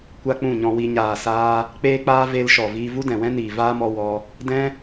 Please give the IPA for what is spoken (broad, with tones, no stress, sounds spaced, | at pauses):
kʷ a˦ k͡p ũ˦˨ ɲ ɔ̃˧ w i˧ ɲ aː˨ s aː˧ | k͡p eː˦ k͡p aː˦ v e˦ l ʃ ɔ˨ v iː˧ v u˦ d ɛ̃˨ w ɛ̃˦ n iː˨ v aː˦ m ɔ˧ w ɔ˧ | d ɛ̃˦